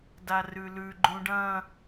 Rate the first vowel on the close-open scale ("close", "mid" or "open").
open